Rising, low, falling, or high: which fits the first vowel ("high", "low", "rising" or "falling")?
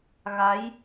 rising